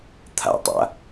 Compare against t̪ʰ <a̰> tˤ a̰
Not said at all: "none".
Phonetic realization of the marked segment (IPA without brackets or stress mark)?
a̰